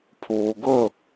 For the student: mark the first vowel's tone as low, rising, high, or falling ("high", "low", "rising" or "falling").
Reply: low